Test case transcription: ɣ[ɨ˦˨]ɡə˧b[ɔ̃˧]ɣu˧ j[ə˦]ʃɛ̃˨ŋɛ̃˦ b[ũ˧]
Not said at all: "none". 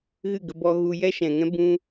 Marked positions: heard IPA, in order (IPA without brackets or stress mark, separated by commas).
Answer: ɨ˦˨, ɔ˧, ɛ˦, ũ˦